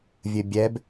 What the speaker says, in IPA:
vʲ ɘ bʲ ɛ b

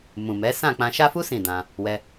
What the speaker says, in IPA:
m ũ˨ m ɛ˨˦ s ã˦˨ k͡p ã˧ ʃ a˦ f u˦ s ĩ˦˨ d ã˧ | w ɛ˧

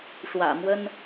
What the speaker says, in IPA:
ʂ w ä̰˨˩ m w ə˦ n

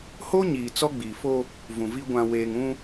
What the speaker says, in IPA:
h o˦ ɲ iː˨ t͡s ɔ˦ ɡ͡b iː˨ f o˦ | v ũ˨ v i˦ ɡʷ ã˨ w eː˨ ŋ ũ˦

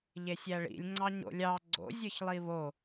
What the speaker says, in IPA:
ʎ e sʲ æ ɭ ḭ lʲ ŋ͡ǀ ɑ ɲ o̰ lʲ ɑ ɡ͡ǀ o̰ zʲ ɯ ç lˠ i β o

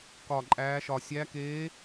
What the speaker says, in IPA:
k ɒ˨˩ ǃʼ æː˩˧ ʃ ɒ˨˩ sʲ æ˧˥ k eː˧˥

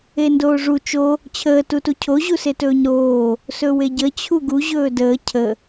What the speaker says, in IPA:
e n d oː ʐ u t͡ʃ o | t͡ɕʰ əː t u t u cʰ o ʑ u s e t ɵː ɲ ɾ oː | s ɵ w e ɟ ə t͡ɕʰ u ɡ u ʑ ɵː d əː cʰ ə

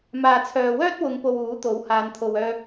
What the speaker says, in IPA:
m aː˨ t͡sʰ œː˨ w œː˥ t̚ w ʊ˨˧ ŋ p o˨ w uː˨˥ t̪ o˨˥ w h aː˨˧ n t̪ʰ o˨ w œː˧

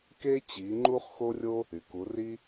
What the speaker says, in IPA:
k e˥ t͡ɕ i˨˦ ŋ͡ǃ u˥ χ x o˥ rʲ o˥ | y˩ k u˨˦ r i˥

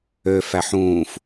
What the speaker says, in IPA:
ø f æ ħ ũː f

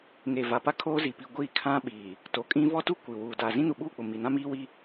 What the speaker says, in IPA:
ŋ e˨ v a˨ p a˦ kʰ oː˦ z i˨ p i˨ ɡʷ iː˦˨ kʰ ã˦ ɓ iː˨ | t o˨ kʼ ĩ˦ v ɔ˦ t u˦ kʷ i˨ w uː˨ d a˨ z ĩ˦ n u˨ ɓ uː˦˨ k͡p ʊ˨ m i˨ n ã˦ m iː˦ w i˦

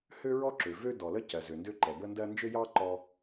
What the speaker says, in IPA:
h ø˥ ɹ ɔ˥ ǁ ø˩ v ø˥ d ɔ˩ l ə˥ c ɜ˩ z ø˩ n d ø˥ ǃ ɛ˩ b ə˥ n d ɜ˥ n d͡ʒ ø˥ j ɑ˥ ǃ ɔ˥

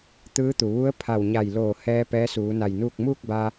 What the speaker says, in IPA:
t̪ ɯː˧˥ t̪ u˩ ʋ u˧˥ ə̯ pʰ a˧˩ w ɲ a˧˩ j l oː˧˩ h ɛː˧ p ɛː˧˥ s uː˩˧ n a˧˩ j n uː˥˨ k̚ m uː˥˨ k̚ b a˧

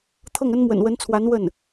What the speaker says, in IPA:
t̪ʰ ɤ˥˩ ŋ ə˥ n m w ə̰˨˩ n w ə˧˥ n t͡sʰ w a˧˥ n w ə˥˩ n

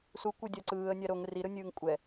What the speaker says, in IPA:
s u kʷ ɯ dʲ a ǀ ɯː ə̯ nʲ a ɾ o ŋ r i ɾ ɯ nʲ ɯː ŋ kʷʼ ɛ

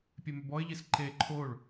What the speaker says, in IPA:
pʲ e m ʏ b ɔ ɪ̯ ʎ i s ǃ e ǃʰ o ɭ

